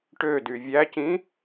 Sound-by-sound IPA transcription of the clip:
ʈ ø d y vʲ æ c ĩ

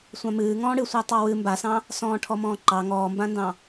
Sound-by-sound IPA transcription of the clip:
sʷ ã m ɨː ŋ ɔ̃ː ɽ ɨ sʷ a tˤ ɑ w ɨ m b a s ɑ̃ | s ɔ̃ː ʈʰ ɔ m ɔ̃ː ǃ ɑ ŋ ɔː m b ã n d ɑ̃

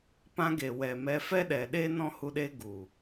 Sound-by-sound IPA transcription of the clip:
p ã˧ ɡ e˨ w ɛ˨ m ɛ˧ f ɛ˦ ɗ ɛ˨ ɗ e˦ n ɔ̃˦ h u˧ ɗ e˦ ɡ u˨

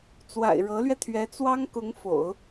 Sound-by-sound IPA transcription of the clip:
t͡s w a̰˨˩ ɪ̯ ɻ ɤ˧˥ l ɥ ɛ˧ t̪ʰ ɥ ɛ˧˥ t͡s w ɑ˥ ŋ k ʊ˧˥ ŋ f o̰˨˩˦ ʊ̯

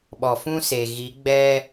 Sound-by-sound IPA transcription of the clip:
ɓ ɔ˨ f ũ˦ s e˨ ɣ i˨˦ ɡ͡b ɛ˦

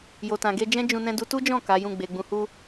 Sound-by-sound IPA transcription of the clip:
j o˨ t ã˨ ɡ e˧ d͡ʒ ɛ̃˦ d͡ʒ ũ˧ n ɛ̃˧ d u˧ t u˦ d͡ʒ ɔ̃˦˨ k a˨˦ j ũ˦˨ ɡ͡b e˨ ɡ͡b ũ˨˦ h u˦

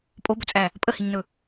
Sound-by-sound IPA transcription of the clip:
pʼ o b ɵ t͡sʼ æ | pʼ ə h i ɲ n ɵ

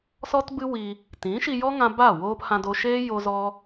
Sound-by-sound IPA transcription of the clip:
s ɔ˦ t b ɨ˦ w i˧ | t ĩ˨˦ ʃ i˧ j ɔ˦ ŋ ã˧ b a˦˨ w oː˦ p h ã˧ d o˧ ʃ eː˦ j o˦ z ɔ˦

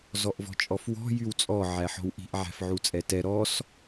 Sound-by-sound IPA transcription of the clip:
z ɔ ʔ v ɔ̤ t͡ʃʼ ɔ f w ɔ̤ j y w t͡sʼ ɔ ʕ æ ħ ɔ̤ w ʔ i̤ ʔ ʕ æ̤ f ʕ u t͡sʼ ɛ t ɛ ɾ ɔ s

